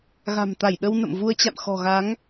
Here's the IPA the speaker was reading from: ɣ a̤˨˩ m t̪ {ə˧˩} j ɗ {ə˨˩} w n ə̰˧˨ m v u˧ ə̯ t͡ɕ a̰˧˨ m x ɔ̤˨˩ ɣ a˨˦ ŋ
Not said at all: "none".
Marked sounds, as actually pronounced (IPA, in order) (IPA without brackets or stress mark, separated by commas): a˧˩, ə˧